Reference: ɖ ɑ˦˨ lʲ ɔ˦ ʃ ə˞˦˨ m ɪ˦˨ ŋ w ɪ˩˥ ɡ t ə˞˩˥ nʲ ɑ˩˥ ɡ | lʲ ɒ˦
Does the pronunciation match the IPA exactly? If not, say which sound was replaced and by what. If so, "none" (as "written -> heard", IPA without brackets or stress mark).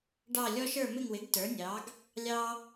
ɒ˦ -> ɑ˦